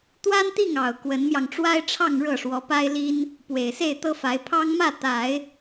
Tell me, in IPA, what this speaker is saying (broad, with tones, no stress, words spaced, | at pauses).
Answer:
t̪wa˥nt̪i˥˩ŋɑ˨˩ʊ̯ kwə˧˥nmjɑ˧ŋ ʈ͡ʂwa˥ɪ̯ʈ͡ʂʰɑ˥˧ŋ ɻɤ˥˩ʂwɔ˧˥pa˥ɪ̯ li˥n | pwe˨˩ɪ̯se˥˩ɪ̯t̪ɤ˥fa˧˥ɪ̯ pʰɑ˥ŋmä˥˩ t̪a˨˩˦ɪ̯